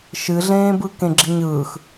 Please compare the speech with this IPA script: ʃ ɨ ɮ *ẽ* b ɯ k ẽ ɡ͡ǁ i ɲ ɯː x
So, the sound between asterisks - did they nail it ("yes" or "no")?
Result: no